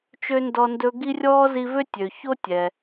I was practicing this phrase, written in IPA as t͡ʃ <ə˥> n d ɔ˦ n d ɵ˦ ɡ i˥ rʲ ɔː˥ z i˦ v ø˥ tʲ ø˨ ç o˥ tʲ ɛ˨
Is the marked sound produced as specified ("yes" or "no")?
no